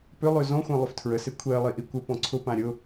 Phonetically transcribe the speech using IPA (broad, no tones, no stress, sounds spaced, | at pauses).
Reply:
p ʏ lˠ ø z ɔ̃ xʷ ã lˠ ʏ f tʰ ɹ ə s e kʷʰ e ɐ̯ lˠ i ʔ i kʷ ə p ɔ̃ ǀʰ ʊ p ã ɾʲ ʊ